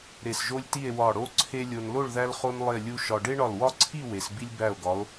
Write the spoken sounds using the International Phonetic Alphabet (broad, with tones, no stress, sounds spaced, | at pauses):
ɾ e˧˩ s ʒ o˥ lʲ t i˥˧ e̯ w ɒ˧˩ ɽ o˥ ǀʰ e˥ lʲ o˧ n l o˥˧ ɭ ð æ˥ l χ o˥ n lˠ e˥˧ lʲ u˥ ʃ ɒ˧ ɖ e˥ ɳ ɒ˧˩ l w ɒ˥ ǀʰ i˥˧ w e˩˧ s b i˥ lʲ b æ˧˩ o̯ ɡ ɒ˩˧ o̯